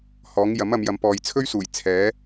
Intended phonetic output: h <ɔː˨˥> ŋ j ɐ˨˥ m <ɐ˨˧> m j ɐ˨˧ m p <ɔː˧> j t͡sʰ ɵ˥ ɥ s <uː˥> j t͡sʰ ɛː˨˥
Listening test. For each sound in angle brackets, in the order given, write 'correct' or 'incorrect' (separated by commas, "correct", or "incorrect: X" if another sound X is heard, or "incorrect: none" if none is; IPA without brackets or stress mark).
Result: correct, correct, incorrect: ɔː˨, incorrect: uː˨˩